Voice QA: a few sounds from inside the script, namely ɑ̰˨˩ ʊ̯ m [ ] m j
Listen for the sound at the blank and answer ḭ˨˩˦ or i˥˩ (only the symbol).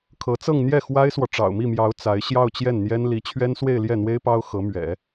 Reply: i˥˩